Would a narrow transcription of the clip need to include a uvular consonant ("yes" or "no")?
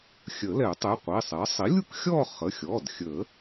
yes